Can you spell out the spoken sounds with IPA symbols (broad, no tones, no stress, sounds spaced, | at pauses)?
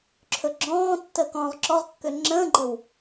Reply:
ǁʰ ɵ ɡ͡ǁ ɔ̃ː tː ə k ɔ̃ː ʁ ǁ ɔ ʁ kː ø ŋ͡ǁ ə̃ː ɡ͡ǃ ə w